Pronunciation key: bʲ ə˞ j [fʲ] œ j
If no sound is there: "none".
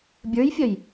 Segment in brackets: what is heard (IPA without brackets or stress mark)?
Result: fʲ